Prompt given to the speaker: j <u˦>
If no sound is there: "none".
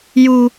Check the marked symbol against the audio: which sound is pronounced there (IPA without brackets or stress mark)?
u˦